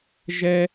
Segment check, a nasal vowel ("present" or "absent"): absent